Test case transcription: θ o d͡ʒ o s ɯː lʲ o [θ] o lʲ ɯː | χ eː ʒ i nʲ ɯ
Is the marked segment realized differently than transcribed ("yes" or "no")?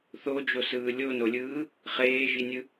yes